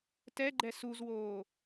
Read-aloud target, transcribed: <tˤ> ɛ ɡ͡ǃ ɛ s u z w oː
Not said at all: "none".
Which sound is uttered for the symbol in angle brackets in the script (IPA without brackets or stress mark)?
t